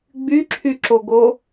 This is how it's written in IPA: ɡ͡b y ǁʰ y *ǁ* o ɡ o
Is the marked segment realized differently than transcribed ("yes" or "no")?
no